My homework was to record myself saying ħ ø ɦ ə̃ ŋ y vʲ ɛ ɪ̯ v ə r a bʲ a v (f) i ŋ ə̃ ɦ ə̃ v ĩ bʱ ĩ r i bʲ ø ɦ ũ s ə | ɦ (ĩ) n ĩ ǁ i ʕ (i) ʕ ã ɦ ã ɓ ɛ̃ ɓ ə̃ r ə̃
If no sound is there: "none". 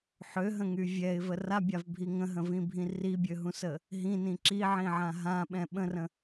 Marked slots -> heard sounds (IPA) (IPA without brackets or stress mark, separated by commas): bʱ, ĩ, ĩ